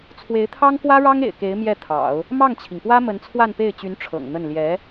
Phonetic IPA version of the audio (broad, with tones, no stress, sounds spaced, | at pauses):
t͡sʰ w e˧˥ ɪ̯ t̪ʰ ɑ˥ ŋ k w ä˥ ɻ ɑ˥ ŋ ḛ˨˩ ɪ̯ k e˧˥ ɪ̯ m j ɛ˥˩ t̪ʰ ɑ̰˨˩˦ ʊ̯ | m ɑ˥˩ ŋ t͡ɕʰ i˩ ŋ p w ä˥ m ə˧˥ n t͡sʰ w a˥˧ n p e˥˩ ɪ̯ t͡ɕ y˧˥ n ʈ͡ʂʰ ɤ̰˨˩ ŋ n̪ ə˥˩ n l j ɛ˧˥